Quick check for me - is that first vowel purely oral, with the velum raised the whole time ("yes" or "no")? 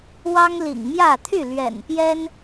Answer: yes